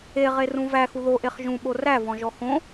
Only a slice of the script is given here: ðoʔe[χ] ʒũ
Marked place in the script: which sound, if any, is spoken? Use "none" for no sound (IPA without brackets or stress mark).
χ